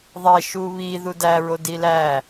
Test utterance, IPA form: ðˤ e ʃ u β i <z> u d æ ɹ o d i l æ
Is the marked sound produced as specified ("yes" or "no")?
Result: no